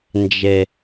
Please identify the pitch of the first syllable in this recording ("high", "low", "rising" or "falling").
low